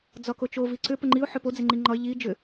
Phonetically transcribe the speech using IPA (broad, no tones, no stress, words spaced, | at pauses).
d͡zɒkot͡ʃo viǀʏ pəŋ͡ǃiʊ̯ ħʏpo d͡zɪŋ͡ǃiŋ͡ǃɒɪ̯ ʎi d͡ʒʏ